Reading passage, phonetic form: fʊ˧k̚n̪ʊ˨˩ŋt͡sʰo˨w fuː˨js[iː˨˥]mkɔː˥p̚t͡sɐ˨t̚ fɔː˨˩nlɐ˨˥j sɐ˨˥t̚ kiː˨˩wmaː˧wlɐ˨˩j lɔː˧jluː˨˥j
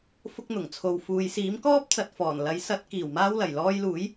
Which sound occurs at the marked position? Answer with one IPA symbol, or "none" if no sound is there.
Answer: iː˨˥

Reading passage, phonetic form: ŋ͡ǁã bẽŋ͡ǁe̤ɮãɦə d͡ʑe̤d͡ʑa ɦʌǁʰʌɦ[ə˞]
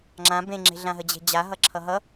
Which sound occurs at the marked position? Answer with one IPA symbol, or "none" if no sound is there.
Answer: ʌ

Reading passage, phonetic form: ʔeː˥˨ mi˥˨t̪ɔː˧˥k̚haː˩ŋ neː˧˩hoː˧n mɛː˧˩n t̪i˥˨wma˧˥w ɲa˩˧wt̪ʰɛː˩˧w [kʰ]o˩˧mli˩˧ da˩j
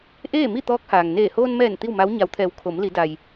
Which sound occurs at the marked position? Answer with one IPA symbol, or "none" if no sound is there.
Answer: kʰ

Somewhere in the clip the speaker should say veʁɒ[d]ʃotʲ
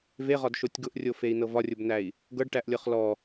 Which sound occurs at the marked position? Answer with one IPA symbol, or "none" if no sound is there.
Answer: d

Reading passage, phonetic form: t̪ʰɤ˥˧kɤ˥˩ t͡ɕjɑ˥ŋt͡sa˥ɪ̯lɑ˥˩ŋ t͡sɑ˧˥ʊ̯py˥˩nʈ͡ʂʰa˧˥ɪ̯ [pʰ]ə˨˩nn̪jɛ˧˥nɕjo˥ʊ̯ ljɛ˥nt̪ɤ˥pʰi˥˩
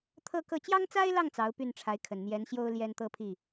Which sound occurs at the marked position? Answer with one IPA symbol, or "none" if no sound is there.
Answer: kʰ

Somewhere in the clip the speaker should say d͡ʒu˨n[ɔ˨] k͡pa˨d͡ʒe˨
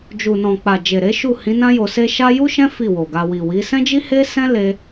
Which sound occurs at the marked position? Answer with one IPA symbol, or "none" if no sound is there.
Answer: ɔ̃˨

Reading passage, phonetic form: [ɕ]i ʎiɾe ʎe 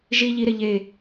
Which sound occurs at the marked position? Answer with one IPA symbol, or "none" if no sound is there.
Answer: ʒ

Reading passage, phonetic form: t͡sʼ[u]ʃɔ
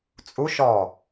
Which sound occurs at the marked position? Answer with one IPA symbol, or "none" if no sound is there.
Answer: u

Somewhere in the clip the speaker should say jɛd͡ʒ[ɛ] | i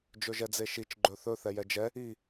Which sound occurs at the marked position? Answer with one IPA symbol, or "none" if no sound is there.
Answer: ɛ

